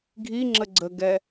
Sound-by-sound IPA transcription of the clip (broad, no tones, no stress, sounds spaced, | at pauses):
ɡʱ i ŋ͡ǁ ə ɡ͡ǀ ə ɡ ɛ